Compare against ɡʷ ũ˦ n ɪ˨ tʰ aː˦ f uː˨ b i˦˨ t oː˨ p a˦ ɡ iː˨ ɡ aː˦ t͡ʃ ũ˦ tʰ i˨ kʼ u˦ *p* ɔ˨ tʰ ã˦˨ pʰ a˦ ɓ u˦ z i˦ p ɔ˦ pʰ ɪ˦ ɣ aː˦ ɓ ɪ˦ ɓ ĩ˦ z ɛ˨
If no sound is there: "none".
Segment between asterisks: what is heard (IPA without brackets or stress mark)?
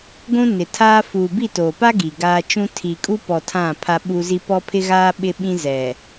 p